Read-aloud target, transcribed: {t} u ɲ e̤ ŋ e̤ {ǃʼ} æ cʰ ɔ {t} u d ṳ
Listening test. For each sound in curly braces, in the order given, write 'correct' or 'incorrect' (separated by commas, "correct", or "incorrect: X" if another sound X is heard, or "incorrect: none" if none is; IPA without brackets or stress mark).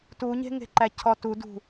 correct, incorrect: ǃ, correct